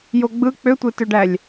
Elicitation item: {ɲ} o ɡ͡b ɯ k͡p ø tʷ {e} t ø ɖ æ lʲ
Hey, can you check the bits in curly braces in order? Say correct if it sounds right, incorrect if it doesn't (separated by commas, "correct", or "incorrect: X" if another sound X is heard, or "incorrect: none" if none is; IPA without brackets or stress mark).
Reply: incorrect: j, correct